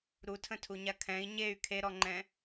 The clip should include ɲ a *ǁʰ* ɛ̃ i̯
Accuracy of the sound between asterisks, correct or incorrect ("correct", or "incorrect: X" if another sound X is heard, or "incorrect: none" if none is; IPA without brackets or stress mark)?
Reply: incorrect: kʰ